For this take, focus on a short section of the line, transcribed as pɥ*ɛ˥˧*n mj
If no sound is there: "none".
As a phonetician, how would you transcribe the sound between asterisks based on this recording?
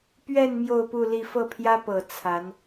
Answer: ɛ˥˧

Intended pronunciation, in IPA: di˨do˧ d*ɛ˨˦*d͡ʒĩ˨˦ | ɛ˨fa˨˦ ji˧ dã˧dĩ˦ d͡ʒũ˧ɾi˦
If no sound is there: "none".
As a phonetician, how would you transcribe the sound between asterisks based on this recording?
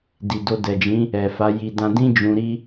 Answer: ɛ˨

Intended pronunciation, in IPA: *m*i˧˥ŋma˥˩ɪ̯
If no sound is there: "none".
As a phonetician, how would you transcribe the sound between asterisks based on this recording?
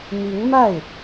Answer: m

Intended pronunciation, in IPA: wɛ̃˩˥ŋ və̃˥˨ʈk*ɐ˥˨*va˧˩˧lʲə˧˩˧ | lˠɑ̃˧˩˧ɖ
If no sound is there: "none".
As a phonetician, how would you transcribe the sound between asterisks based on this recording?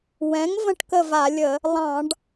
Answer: ə˥˨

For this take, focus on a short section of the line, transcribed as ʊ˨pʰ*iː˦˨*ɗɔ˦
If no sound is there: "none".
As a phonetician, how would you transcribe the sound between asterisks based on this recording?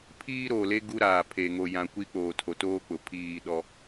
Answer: iː˦˨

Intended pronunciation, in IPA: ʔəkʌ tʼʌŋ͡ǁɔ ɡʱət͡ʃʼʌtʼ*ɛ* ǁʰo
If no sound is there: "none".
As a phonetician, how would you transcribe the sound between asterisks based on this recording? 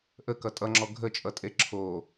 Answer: e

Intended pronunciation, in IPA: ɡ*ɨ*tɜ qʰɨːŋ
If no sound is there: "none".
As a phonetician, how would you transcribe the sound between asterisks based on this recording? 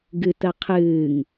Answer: ɨ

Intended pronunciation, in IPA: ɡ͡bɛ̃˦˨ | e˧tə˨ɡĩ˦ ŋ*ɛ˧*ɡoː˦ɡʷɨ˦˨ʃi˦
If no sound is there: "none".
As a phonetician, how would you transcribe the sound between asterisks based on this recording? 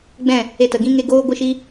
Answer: e˧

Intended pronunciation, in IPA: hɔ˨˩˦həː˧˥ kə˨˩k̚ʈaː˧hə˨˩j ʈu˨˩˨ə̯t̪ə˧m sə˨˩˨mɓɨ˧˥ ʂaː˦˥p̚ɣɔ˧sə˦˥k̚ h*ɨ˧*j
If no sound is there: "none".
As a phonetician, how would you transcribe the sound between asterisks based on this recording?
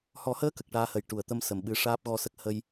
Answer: ə˧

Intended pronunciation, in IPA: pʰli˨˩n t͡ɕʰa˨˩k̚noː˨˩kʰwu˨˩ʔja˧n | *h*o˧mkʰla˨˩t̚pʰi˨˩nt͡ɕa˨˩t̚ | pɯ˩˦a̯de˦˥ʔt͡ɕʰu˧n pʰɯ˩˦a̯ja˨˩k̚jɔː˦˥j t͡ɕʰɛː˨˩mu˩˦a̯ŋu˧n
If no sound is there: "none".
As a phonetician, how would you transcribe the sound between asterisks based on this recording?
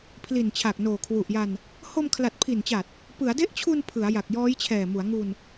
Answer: h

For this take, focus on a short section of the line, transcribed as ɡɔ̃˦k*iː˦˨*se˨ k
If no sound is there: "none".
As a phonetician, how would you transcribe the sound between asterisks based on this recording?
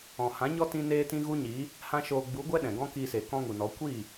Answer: iː˧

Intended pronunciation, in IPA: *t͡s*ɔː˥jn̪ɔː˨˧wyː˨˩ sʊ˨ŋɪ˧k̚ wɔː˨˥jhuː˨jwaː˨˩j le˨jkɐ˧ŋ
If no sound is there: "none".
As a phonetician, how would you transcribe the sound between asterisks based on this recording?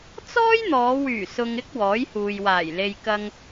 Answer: t͡s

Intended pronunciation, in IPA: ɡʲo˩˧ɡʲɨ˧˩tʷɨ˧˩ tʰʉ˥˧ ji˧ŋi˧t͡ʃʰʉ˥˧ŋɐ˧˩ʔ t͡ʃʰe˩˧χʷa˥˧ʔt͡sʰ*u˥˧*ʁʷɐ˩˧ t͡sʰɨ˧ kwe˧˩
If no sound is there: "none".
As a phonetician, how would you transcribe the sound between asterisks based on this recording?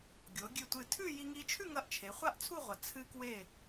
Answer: u˥˧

